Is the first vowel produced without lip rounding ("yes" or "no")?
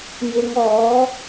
yes